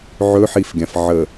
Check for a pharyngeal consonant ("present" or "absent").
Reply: present